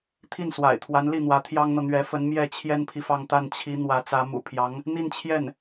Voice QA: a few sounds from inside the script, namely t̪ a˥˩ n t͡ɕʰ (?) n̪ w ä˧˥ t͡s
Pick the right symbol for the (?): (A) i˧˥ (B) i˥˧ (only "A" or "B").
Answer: A